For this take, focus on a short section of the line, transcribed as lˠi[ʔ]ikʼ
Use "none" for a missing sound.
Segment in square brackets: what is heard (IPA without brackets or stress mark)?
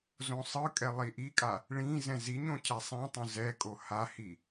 ʔ